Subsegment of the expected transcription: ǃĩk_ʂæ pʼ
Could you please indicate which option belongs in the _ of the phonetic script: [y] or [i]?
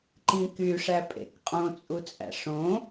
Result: y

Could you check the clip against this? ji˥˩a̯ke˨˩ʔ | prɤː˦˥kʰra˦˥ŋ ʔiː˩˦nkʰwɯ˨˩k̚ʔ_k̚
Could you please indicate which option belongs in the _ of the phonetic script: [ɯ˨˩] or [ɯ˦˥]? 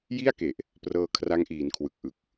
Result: ɯ˨˩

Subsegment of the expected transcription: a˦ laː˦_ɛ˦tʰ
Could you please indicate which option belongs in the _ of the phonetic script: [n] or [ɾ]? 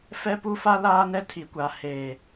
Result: n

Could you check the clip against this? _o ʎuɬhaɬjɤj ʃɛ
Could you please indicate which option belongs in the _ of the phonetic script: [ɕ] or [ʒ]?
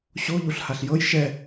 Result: ɕ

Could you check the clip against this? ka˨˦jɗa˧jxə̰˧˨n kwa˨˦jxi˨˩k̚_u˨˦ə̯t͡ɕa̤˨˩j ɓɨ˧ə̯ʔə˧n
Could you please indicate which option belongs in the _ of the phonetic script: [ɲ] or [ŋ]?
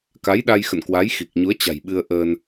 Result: ɲ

